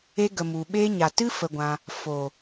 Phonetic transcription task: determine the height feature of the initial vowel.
mid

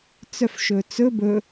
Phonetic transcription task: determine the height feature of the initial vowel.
mid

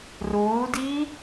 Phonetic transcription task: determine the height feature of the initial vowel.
high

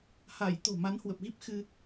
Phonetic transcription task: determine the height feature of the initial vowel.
low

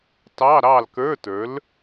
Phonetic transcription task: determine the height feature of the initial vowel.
low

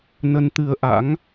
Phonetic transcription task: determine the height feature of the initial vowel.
mid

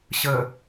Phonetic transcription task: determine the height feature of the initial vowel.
mid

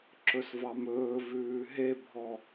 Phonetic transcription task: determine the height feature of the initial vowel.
mid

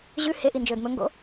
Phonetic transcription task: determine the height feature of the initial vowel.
high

